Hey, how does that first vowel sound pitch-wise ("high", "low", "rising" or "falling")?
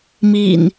low